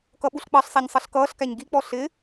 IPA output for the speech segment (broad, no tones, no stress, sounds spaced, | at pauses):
k ʌ ɓ u ɬ k͡p ɑ ɬ sˤ æ ɲ sˤ ʌ ɬ k ʌː ɬ k æ ɲ ɡ i k͡p ɔ ɬ ɪ